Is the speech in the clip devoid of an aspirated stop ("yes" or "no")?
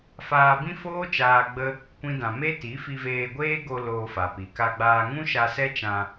yes